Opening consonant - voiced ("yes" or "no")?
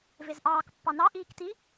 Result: yes